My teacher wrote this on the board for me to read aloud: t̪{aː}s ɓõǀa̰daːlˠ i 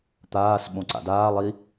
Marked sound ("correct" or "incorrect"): correct